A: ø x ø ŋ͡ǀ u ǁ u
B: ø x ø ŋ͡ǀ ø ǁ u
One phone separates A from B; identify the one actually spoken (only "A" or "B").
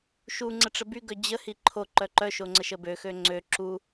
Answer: B